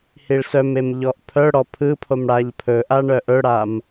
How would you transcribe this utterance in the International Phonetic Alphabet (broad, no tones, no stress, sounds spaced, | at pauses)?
h i ɭ s œ m e m ʎ ɔ ʔ pʰ œ ɽ ɔ pʰ ɯ pʰ o m ɽ a ʎ pʰ ɵ ʔ a ɳ œ ʔ ɵ ɽ a m